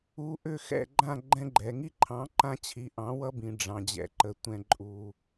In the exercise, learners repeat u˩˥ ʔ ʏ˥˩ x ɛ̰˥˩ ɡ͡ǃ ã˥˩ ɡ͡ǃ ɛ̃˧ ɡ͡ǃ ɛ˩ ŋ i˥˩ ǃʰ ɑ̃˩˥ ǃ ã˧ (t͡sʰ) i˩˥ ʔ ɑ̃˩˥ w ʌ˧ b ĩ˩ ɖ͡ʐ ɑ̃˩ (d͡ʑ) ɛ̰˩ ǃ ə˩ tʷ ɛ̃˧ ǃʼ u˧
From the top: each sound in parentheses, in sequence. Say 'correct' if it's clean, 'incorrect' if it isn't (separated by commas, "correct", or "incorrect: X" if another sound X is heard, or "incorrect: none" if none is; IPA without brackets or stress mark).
incorrect: t͡ɕʰ, correct